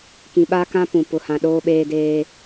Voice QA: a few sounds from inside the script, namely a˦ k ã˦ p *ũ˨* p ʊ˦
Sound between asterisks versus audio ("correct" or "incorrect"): correct